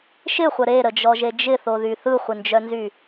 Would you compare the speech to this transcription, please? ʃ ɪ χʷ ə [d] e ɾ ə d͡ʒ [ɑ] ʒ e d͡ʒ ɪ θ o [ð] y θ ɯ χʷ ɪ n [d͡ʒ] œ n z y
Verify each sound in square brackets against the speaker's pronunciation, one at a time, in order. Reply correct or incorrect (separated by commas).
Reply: incorrect, incorrect, correct, correct